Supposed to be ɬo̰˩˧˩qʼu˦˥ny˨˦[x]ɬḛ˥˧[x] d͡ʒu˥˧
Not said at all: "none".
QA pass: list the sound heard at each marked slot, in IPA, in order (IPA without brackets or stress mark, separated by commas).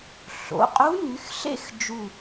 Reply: x, x